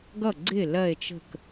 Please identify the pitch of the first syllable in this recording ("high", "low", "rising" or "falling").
falling